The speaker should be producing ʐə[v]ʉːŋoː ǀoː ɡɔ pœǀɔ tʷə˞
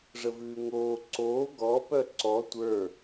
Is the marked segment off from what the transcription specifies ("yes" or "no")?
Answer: no